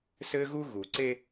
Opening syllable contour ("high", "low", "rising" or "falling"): high